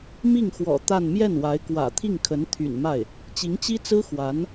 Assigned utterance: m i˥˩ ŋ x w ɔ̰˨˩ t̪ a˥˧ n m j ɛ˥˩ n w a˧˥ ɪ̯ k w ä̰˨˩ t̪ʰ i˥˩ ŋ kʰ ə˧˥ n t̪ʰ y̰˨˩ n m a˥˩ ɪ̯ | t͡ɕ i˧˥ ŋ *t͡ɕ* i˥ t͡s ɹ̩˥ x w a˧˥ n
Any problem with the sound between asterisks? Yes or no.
no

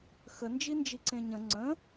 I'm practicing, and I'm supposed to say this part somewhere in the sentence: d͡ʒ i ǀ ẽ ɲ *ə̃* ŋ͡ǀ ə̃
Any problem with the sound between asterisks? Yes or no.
no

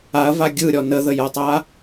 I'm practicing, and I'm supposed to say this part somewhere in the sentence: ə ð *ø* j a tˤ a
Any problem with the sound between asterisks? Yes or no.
yes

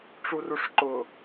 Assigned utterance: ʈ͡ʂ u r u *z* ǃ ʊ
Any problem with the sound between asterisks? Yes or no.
yes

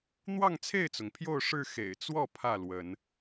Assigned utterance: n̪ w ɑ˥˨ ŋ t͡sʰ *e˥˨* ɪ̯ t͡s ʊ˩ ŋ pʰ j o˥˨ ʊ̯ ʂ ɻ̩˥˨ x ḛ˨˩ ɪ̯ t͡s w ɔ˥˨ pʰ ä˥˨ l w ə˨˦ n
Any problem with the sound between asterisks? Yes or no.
no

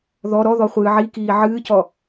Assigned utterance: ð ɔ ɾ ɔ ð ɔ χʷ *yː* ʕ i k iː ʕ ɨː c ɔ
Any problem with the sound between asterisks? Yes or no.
yes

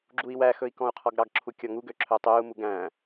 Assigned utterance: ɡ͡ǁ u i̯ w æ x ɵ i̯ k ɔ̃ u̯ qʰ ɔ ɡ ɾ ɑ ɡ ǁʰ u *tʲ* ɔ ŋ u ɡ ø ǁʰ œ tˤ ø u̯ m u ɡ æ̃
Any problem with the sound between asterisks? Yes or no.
yes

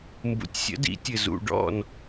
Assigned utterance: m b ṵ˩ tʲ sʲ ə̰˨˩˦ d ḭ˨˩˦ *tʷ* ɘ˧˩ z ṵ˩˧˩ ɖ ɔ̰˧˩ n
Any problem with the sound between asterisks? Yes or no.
yes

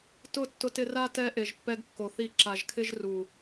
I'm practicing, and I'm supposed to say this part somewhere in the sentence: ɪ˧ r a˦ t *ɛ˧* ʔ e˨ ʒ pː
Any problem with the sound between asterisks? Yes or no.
no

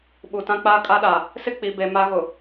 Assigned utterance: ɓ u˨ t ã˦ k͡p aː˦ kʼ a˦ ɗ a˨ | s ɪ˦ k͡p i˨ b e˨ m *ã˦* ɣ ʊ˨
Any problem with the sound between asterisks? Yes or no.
yes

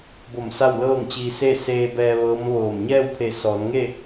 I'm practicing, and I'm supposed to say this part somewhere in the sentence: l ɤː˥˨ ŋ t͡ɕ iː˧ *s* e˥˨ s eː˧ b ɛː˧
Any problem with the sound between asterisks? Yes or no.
no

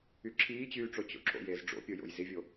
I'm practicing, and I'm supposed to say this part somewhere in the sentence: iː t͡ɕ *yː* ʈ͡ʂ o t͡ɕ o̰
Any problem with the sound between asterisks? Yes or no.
no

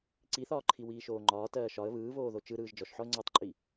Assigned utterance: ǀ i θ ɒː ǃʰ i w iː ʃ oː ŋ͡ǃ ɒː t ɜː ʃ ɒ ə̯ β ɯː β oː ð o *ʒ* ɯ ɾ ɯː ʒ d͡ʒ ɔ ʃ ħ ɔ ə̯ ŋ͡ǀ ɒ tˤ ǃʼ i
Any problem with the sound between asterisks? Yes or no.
yes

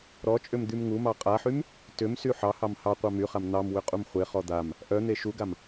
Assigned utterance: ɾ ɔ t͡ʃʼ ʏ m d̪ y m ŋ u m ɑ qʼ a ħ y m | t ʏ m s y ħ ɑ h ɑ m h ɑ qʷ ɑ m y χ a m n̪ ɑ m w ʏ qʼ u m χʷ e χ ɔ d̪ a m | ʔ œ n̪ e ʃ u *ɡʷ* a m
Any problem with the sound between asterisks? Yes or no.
yes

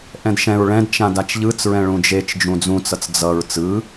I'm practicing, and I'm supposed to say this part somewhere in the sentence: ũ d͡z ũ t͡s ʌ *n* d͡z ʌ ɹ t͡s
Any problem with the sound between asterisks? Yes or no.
yes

